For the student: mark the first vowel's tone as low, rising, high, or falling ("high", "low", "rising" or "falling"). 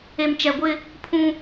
low